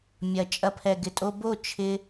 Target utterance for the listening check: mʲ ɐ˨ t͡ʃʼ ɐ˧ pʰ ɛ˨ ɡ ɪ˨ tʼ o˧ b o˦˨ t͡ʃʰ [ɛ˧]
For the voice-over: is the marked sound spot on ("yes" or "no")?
no